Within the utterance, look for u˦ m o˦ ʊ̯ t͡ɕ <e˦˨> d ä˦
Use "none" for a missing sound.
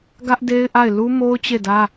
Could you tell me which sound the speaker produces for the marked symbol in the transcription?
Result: e˦˨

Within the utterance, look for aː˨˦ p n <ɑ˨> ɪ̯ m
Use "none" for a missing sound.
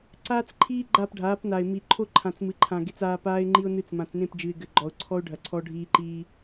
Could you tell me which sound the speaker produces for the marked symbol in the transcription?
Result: a˨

